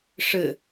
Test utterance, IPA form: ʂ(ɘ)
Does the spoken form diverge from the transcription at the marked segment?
no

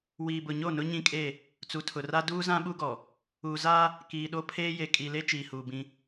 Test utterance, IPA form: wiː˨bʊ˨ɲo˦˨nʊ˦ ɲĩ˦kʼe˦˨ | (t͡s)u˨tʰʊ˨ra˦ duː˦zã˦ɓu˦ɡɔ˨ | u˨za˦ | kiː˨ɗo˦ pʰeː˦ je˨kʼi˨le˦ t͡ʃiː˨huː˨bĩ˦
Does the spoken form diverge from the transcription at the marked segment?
no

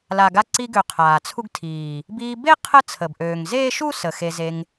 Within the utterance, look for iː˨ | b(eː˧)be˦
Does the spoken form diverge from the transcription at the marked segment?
yes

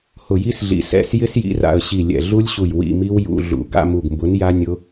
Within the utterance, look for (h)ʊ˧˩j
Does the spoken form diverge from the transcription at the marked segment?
no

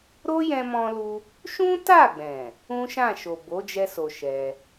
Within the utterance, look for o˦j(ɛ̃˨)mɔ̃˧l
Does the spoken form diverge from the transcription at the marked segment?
yes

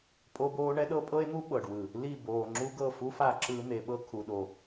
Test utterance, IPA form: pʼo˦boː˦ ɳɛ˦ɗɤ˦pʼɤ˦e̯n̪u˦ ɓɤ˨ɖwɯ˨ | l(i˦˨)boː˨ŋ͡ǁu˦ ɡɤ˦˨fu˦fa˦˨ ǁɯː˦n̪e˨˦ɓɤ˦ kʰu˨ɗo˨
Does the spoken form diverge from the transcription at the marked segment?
no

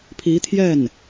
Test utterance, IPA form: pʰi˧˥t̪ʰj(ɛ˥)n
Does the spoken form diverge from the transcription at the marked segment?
yes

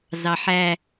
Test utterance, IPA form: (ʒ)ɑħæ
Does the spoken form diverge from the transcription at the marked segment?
yes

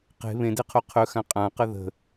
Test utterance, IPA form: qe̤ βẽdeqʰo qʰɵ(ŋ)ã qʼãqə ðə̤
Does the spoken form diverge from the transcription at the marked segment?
yes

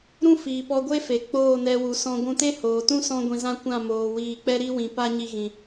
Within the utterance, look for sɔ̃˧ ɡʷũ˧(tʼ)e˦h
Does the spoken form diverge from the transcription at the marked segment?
yes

